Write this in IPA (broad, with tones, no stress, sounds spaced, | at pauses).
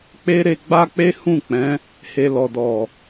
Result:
k͡p e˦ ɾ e˧ ɡ͡b a˦ k͡p e˦ h ũ˦˨ k͡p ɛ̃˨˦ | h e˨ l ɔ˨ d ɔ˨